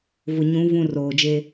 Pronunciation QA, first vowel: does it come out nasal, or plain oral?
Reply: oral